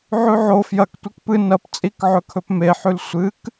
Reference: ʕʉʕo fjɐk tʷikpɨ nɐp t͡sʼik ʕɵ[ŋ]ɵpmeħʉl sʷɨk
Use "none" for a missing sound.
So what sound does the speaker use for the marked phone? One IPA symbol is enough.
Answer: kʰ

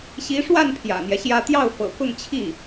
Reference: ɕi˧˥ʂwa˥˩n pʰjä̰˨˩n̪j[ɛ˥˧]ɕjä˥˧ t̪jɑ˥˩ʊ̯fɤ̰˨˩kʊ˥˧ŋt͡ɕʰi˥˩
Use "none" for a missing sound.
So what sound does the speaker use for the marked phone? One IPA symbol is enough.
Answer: ɛ˦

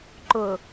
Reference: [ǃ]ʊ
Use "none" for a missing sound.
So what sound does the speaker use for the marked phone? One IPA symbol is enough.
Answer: ǃ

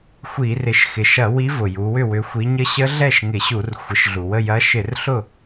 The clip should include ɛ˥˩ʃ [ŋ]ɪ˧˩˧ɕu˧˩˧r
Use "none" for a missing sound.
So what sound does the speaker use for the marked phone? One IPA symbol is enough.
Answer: ŋ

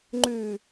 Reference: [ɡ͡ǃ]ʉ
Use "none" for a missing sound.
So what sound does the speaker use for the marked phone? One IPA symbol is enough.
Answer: ŋ͡ǃ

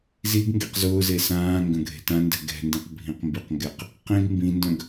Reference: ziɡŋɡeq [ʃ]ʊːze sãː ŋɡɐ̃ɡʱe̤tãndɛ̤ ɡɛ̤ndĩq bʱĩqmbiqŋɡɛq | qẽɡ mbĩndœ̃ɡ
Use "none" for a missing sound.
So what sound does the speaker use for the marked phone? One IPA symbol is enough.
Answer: z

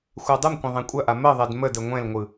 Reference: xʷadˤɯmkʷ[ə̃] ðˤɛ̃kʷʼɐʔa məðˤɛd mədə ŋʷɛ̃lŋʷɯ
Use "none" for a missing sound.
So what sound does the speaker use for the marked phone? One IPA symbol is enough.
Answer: ɐ̃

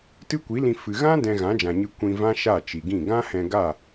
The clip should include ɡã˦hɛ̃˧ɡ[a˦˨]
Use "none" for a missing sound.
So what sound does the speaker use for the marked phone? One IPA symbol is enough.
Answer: a˦˨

